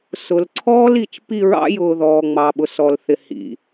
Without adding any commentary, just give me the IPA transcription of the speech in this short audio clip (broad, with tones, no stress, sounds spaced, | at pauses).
s ʊ˨ l ǀʰ ɔː˦ l i˨ t͡ʃ p i˦˨ ɹ ɑ̰˦ j ʊː˨ ð ɔː˨ ŋ͡m ɑ˨ ɓ ʊ˨ s ɔ˨ l θ ɪ˨ h ḭ˨